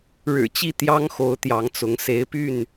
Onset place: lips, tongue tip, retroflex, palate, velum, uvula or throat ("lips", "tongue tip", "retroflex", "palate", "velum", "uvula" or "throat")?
retroflex